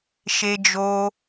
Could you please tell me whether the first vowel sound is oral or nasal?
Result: oral